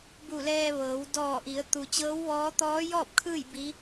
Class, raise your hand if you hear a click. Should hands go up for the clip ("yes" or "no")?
no